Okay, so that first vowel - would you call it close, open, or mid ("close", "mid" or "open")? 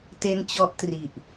mid